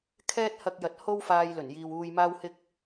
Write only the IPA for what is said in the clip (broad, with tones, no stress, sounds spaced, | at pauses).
kʰ ɛː˥ t̚ h ɐ˧ k̚ j ɐ˨ t̚ h o˥ w f aː˧ j l ɵ˨˩ n j iː˨ w uː˧ j m aː˥ w h ɪ˥ k̚